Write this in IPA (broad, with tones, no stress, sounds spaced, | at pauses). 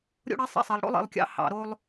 ɾʲ o̰˦ ɽ e˦ sˤ ḭ˦ sˤ e˨ lˠ ɽ o̰˦ lˠ ḭ˨ lˠ kʲ ɑ̰˦ h ɑ̰˨ ɾ o˦ lˠ